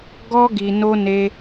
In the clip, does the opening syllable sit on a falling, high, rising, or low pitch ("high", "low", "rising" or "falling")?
high